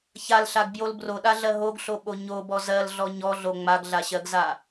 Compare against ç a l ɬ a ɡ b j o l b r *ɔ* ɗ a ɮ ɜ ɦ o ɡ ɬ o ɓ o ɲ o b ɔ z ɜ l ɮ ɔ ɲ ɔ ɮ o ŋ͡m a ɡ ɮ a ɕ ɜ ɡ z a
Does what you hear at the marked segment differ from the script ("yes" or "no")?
yes